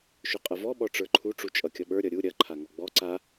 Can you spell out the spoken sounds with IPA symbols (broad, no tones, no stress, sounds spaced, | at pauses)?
ʃ ɵ qʼ ɐ v ɔ ɓ ɔ ʈ͡ʂ ə˞ ǃʰ u ʈ͡ʂ u t͡ʃʼ ʌ kʲ ʌ ɓ ə˞ ɾʲ ʌ ɾʲ u ɾʲ ɐ ǃʰ a ŋ ɔ ɡ͡b ɔ ǀ a